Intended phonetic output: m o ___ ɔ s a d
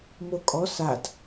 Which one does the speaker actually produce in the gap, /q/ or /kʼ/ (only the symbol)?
kʼ